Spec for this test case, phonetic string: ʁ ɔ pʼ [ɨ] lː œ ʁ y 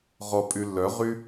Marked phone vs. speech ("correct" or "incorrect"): incorrect